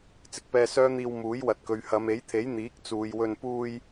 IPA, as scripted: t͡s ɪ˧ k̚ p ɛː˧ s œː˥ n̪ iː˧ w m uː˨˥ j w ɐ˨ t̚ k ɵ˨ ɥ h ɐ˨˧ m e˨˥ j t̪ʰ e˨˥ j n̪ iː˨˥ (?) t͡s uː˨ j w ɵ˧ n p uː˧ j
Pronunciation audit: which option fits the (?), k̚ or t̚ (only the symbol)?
k̚